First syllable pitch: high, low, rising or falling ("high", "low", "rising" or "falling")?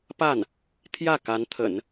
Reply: falling